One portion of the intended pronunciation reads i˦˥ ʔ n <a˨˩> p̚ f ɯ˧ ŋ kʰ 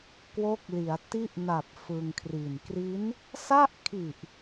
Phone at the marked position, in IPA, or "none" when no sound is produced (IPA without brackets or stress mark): a˨˩